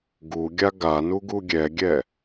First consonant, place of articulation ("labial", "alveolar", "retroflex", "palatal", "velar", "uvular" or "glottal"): velar